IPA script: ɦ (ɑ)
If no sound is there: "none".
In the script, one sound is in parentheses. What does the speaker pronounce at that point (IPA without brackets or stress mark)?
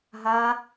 a